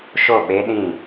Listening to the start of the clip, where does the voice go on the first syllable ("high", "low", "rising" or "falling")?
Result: falling